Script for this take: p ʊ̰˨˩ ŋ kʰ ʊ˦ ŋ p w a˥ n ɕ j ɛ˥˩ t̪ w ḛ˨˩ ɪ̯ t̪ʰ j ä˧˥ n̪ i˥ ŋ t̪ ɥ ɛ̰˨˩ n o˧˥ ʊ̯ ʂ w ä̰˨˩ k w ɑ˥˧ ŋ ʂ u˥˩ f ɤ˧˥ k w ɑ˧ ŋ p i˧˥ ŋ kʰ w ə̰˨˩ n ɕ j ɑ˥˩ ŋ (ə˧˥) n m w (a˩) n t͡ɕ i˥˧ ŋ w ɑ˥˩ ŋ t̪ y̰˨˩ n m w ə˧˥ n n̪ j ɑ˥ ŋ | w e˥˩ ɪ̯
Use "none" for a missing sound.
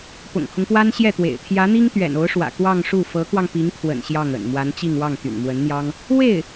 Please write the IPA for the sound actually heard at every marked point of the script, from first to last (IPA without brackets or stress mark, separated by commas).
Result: ə̰˨˩, a˧˥